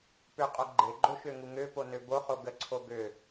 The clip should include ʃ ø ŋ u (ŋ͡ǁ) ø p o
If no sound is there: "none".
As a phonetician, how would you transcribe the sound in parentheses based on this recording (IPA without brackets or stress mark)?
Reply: ŋ